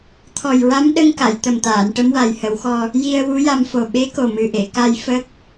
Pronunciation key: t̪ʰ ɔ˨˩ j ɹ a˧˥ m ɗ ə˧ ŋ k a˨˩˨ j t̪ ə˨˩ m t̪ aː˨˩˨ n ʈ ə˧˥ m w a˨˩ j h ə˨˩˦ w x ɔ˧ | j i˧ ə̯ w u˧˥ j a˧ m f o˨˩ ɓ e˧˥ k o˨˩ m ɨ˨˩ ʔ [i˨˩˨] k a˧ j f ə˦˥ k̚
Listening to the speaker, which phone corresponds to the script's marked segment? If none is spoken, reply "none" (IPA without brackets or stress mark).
e˨˩˨